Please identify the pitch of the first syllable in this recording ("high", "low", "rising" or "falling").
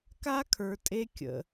high